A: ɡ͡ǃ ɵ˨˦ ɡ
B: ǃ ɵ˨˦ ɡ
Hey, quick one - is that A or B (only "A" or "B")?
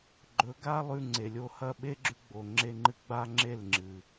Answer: A